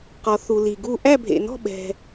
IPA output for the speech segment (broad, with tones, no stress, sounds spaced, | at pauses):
q ɔ˨ θ u˨ l i˨ ɡ u˥˨ ʔ æ˥˨ bʱ ḛ˨ n ɔ̤˥˨ ɓ ɛ̤˨